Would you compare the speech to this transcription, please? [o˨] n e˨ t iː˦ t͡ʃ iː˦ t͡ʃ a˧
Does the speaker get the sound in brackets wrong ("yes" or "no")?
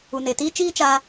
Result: yes